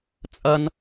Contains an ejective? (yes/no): yes